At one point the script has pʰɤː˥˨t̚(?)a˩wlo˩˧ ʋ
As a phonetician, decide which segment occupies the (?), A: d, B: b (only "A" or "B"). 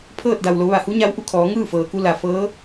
A